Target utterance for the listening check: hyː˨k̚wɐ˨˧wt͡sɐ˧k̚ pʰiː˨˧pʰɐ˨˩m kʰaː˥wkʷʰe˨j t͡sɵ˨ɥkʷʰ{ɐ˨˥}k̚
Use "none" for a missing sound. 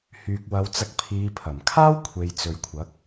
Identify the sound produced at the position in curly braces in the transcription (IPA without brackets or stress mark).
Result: ɐ˨˥